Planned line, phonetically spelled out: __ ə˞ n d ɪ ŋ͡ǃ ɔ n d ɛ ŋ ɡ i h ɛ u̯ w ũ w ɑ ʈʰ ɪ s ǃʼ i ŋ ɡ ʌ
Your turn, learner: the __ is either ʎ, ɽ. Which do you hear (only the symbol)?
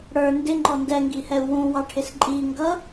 ɽ